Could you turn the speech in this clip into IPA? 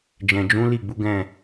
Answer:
d͡ʒɛ̃˨d͡ʒũ˨˦ li˦˨ɡ͡bu˨˦ ɡɛ̃˦˨

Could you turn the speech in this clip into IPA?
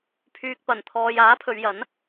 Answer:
pʰyː˨k̚pɐ˨˩nt̪ʰɔː˨j aː˨˥pʰɵ˨˧ɥjɐ˨˥n

